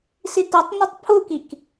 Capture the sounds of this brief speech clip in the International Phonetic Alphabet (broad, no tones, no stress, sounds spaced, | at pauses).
s i t ɐ tˤ n ɨ tˤ pʰ u k i k